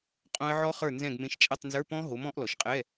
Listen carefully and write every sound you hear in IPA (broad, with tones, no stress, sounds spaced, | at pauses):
qʼ õ˦˥ ə̯ ʕ ɔ˦˥ χ ə˞˦˨ n z ɛ̃˦˨ ɡ m ẽ˨˥ ʃ t͡ʃʼ ɐ˧˥˧ tˤ n z ə˞˧˥˧ p ɔ̃˦˥ ɦ o˨˥ m ɔ̃˨˥ ʔ l ɔ˨ ʃ qʼ ɛ˧˥˧